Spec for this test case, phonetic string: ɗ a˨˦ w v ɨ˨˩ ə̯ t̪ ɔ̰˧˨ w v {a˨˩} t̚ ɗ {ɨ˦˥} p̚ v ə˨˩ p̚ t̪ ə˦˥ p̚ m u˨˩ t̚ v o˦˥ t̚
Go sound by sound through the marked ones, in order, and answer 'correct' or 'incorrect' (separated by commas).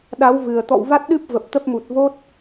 incorrect, correct